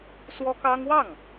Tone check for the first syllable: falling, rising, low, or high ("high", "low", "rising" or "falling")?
high